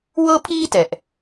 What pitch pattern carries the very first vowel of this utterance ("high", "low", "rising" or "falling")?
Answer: high